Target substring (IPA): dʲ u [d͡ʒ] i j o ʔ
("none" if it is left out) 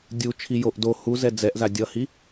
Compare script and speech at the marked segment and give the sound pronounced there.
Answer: t͡ʃʰ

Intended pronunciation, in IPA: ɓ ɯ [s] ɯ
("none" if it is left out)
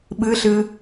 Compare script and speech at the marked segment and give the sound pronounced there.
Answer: ɬ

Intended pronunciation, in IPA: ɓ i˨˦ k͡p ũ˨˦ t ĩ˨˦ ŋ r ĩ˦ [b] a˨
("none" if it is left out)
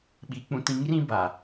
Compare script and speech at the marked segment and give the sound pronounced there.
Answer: b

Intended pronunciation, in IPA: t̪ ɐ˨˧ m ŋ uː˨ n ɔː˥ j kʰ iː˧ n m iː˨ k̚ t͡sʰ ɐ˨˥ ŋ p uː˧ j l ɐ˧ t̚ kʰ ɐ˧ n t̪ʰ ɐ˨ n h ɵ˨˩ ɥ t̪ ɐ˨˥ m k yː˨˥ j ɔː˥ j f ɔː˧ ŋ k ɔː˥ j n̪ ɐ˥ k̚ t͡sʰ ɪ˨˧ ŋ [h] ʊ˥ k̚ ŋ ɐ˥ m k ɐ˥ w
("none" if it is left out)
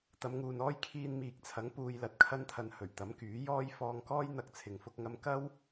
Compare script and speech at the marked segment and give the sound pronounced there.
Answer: f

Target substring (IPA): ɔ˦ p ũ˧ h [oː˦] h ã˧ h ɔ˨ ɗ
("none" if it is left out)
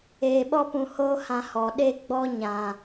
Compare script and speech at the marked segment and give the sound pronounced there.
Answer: oː˦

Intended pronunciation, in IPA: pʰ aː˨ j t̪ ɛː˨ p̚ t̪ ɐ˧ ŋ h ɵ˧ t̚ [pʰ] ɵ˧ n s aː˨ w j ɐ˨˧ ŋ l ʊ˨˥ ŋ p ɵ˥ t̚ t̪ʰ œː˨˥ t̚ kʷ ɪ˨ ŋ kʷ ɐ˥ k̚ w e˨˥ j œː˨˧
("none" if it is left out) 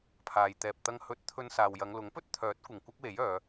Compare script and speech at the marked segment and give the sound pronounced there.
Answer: t̪ʰ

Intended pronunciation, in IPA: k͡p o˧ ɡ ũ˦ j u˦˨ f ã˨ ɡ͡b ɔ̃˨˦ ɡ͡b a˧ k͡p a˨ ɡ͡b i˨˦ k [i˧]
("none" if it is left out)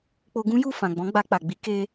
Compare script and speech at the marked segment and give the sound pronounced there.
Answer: e˧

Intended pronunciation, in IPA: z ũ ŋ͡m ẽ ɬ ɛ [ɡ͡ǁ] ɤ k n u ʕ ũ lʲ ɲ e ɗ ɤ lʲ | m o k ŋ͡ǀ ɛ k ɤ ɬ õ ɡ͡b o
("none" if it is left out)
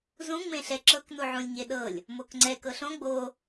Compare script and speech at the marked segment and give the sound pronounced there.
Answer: ǁ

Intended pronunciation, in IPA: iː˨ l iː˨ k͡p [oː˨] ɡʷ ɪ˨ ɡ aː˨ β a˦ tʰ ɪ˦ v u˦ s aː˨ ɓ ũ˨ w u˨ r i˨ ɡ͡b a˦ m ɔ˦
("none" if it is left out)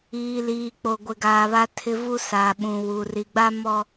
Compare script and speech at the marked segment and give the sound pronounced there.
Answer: o˨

